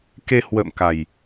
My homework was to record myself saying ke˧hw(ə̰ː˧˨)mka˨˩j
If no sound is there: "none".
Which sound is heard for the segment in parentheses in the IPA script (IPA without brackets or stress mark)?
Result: ə̰ː˧˨